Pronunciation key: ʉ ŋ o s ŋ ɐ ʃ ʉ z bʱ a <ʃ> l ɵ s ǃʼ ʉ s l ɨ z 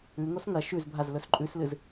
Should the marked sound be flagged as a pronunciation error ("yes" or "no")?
yes